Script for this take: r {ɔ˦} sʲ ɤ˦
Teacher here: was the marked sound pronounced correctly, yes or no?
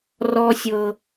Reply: yes